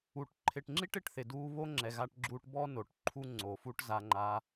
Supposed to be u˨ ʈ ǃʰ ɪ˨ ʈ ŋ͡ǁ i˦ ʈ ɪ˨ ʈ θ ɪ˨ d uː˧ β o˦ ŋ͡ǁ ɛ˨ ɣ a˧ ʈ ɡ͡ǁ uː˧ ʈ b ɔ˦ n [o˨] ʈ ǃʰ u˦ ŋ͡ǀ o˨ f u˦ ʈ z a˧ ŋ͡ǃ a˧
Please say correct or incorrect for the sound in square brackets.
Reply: correct